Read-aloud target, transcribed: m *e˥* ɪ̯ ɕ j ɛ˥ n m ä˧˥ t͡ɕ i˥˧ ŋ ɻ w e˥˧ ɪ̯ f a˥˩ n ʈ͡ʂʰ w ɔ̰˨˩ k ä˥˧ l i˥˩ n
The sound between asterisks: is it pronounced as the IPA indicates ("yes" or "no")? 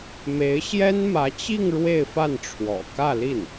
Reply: no